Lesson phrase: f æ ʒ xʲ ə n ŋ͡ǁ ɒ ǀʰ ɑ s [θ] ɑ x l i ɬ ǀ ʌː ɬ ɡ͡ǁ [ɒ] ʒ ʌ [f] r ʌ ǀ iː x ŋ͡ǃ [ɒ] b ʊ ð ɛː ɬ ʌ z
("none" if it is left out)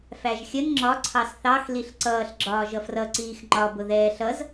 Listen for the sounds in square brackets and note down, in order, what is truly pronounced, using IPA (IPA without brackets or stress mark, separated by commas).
θ, ɒː, f, ɒ